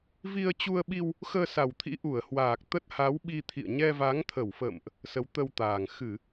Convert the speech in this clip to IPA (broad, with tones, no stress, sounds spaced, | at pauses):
v i˧ ə̯ t͡ɕ u˧ ə̯ ɓ i˧ w | x əː˧ s a˨˩ w t̪ʰ ḭ˧˥ ʔ u˧˩ ə̯ h w aː˨˩ k̚ t̪ ə˦˥ t̚ h a˨˦ w ɓ i˧ t̪ʰ ḭ˧˨ ə̯ ɲ ɛ˧ v a˨˦ ŋ t̪ʰ ə˧˩ w f ə̰˧˨ m ʔ | s ə˨˦ w t̪ ə˧ w t̪ aː˨˩ ŋ x ɨ˧˩˨